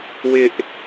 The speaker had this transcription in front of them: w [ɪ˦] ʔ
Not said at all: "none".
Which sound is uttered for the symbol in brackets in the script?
ɪ˦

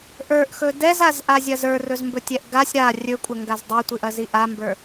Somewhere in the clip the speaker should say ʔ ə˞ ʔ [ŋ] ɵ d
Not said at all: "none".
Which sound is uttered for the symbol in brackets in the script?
x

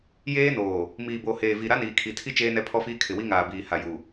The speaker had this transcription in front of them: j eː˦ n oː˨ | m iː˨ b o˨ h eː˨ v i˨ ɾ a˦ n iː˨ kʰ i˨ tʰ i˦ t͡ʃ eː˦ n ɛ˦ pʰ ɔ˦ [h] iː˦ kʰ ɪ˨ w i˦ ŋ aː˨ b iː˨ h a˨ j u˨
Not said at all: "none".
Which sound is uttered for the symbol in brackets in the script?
f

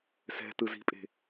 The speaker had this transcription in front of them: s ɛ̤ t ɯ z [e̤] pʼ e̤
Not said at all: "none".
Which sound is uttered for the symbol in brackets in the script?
i̤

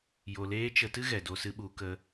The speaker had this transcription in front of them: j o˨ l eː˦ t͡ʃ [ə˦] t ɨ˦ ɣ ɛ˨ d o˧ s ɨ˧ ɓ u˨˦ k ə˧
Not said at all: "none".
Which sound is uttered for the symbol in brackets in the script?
ə˧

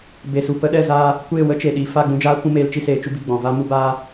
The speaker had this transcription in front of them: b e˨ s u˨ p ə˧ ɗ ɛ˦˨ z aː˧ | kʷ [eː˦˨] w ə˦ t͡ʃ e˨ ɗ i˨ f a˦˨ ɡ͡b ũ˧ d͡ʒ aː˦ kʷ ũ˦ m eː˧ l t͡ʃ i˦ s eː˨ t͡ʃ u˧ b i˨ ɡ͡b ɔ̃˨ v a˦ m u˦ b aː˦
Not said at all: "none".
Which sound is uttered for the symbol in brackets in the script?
eː˦˨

